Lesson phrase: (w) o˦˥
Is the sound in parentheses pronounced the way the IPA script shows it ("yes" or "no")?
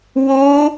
yes